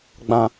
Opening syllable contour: high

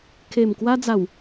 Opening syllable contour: low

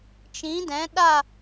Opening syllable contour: rising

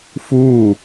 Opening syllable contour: falling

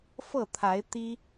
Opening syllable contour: falling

